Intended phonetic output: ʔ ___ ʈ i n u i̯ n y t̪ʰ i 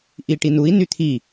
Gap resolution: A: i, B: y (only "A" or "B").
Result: A